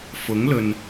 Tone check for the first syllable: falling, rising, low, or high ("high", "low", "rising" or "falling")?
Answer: rising